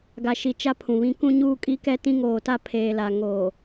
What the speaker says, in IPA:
ɡa˨ʃi˨ t͡ʃa˦pʰũ˨ βĩ˦ kũ˦ɲuː˦kʼi˦kɛ˦ tĩ˦ŋoː˨ta˦ pʰeː˨la˨ ŋoː˨

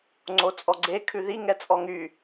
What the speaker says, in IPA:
ŋ͡ǀot͡sʼɔɡ͡ǀekʰʉ ðiŋɛ t͡sʼɔŋy

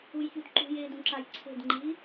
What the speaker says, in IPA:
ujçudǃṳjeːd ũǁajǀʰe̤dŋ͡ǃiː

